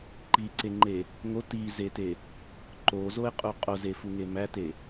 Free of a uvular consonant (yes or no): no